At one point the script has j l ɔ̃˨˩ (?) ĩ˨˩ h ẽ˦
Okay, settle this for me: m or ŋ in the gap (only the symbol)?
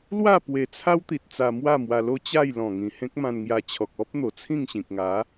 ŋ